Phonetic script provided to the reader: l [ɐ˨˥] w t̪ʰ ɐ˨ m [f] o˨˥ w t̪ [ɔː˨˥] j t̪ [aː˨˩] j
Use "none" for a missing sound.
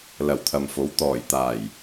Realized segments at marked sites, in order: ɐ˨˩, f, ɔː˨˩, aː˨˩

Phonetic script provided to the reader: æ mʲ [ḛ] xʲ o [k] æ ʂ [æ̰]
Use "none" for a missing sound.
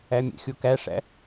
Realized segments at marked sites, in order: ḛ, k, æ̰

